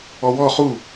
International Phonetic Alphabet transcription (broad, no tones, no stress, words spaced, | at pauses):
ɔwɔ χu